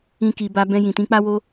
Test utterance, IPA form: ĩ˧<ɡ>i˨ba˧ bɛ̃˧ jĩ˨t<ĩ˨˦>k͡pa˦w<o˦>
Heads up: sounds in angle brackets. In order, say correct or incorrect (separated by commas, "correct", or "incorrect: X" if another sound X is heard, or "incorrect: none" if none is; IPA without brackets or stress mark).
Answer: incorrect: k, correct, correct